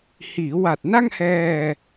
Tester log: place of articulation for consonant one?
glottal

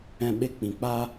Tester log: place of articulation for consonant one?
labial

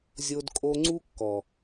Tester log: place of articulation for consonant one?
alveolar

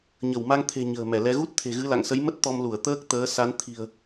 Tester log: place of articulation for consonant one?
palatal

